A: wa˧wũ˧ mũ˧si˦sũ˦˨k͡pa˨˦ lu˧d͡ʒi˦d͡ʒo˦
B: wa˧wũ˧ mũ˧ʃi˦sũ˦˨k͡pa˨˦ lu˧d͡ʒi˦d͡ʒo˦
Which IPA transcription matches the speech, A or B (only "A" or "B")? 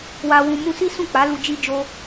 A